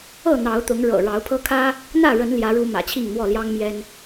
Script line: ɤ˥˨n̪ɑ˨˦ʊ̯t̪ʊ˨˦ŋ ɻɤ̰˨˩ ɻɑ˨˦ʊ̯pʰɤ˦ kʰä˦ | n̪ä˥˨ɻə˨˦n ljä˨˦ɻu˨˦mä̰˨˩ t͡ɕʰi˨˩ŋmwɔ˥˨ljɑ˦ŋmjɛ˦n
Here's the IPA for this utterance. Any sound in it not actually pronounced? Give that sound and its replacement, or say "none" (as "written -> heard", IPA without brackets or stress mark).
i˨˩ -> i˥˨